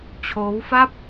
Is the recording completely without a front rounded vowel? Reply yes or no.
yes